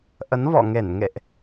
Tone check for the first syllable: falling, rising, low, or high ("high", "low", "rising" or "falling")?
rising